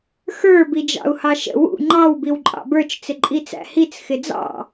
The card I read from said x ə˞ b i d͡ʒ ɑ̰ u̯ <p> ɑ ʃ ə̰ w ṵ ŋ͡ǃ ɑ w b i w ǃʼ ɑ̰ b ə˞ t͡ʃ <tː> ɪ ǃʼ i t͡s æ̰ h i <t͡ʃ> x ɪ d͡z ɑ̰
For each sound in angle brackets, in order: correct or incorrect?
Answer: incorrect: h, incorrect: t͡s, incorrect: t͡s

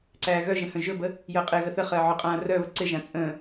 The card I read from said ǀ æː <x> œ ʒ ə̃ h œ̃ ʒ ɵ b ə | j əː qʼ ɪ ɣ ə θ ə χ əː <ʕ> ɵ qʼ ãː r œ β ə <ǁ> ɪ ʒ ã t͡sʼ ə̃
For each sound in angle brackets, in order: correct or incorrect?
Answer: incorrect: ɣ, correct, incorrect: ǀ

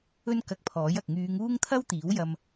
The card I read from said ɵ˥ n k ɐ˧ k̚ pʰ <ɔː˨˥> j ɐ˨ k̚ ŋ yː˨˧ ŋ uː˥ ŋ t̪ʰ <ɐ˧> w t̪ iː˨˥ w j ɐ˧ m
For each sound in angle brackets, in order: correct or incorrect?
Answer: correct, incorrect: ɐ˥

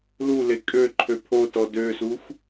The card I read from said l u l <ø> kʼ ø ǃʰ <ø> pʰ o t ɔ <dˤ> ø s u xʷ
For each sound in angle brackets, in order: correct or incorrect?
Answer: incorrect: e, correct, incorrect: d

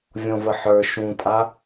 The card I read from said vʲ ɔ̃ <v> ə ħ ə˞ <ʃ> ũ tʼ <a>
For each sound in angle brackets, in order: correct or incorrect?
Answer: correct, correct, correct

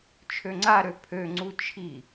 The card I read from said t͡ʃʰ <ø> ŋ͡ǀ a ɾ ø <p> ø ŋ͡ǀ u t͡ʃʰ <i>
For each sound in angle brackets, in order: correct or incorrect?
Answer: correct, incorrect: pʰ, correct

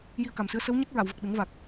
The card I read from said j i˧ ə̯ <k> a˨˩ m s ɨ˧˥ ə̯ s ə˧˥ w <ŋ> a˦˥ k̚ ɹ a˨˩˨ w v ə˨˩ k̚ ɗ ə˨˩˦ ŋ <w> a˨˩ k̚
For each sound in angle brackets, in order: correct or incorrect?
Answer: correct, incorrect: ɲ, incorrect: v

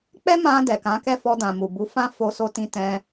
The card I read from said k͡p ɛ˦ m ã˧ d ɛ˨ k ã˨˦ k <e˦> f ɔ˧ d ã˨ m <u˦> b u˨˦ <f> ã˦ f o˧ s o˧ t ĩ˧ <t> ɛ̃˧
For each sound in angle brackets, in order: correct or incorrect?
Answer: incorrect: ɛ˦, incorrect: u˨, correct, correct

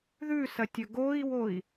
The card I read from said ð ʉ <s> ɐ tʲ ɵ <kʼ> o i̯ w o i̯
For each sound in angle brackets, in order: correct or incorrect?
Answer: correct, incorrect: ɡ

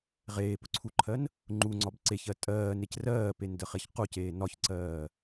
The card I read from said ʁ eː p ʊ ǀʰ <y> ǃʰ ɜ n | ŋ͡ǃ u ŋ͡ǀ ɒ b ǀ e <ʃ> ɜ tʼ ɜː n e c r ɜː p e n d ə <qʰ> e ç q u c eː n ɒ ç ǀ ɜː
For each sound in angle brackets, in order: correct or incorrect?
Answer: incorrect: u, incorrect: ç, incorrect: χ

